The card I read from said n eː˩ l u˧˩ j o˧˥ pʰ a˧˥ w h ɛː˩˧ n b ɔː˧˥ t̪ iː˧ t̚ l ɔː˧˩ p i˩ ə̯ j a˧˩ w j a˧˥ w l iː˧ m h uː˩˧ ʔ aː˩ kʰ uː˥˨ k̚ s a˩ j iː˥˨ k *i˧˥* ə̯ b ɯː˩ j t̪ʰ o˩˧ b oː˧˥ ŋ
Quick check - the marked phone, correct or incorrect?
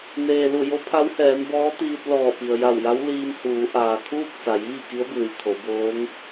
correct